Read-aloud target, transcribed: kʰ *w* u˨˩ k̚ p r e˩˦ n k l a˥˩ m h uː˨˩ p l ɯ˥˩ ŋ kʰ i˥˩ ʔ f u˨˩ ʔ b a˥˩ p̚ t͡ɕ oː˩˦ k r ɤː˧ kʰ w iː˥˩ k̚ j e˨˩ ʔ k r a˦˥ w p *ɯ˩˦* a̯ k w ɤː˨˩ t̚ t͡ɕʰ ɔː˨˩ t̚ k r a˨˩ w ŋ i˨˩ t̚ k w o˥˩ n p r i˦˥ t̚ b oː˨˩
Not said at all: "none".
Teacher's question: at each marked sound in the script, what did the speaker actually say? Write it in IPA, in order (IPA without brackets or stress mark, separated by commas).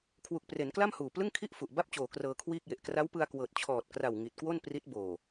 w, ɯ˧